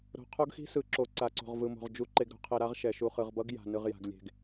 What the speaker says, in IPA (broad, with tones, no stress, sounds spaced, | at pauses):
ɾ o̤˨ qʰ o˦ ɡ x i̤˦ s ɯ˨ ǁ o˨ ǀ a˨ ǀ o̤˨ ʁ v ɯ˨ m o̤˨ ʁ d͡ʒ u˨ ǃ e˨ ɡ ɾ o̤˨ qʰ e˨ ɾ a˦ ʁ ʃ ɛ˨ ʃ u˨ χ ɯ˨ ʁ b ʌ˦ ɡ j a̤˨ n ɯ˨ ʁ j a̤˨ ɡ lʲ e̤˨ ɡ